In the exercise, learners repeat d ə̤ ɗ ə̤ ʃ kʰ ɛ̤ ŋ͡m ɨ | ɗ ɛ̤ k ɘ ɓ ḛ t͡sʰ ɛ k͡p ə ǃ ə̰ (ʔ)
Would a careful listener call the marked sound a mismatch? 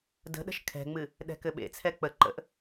no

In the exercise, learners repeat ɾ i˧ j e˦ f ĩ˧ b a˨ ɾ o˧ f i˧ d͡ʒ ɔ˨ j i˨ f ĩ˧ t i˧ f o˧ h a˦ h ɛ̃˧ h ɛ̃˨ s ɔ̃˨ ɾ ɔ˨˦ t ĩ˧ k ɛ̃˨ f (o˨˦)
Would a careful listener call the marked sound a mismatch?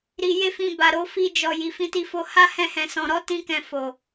yes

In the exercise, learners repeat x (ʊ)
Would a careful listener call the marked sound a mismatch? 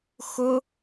no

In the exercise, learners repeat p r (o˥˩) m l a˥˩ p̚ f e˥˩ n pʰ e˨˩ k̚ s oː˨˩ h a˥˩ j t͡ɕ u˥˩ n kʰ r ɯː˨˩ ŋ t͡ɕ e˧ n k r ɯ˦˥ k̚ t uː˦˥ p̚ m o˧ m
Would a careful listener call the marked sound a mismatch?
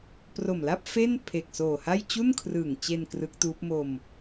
yes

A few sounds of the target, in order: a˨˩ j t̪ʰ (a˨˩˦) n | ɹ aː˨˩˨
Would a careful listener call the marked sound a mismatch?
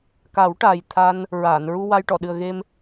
yes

